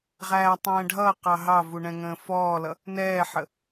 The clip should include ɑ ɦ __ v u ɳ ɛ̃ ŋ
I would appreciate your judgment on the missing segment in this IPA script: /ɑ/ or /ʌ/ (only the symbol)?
ɑ